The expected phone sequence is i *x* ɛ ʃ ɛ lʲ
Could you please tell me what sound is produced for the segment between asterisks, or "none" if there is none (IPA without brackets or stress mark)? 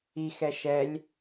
x